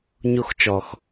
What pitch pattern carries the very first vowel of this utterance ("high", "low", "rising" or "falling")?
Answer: high